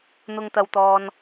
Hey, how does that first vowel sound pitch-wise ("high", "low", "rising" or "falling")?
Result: high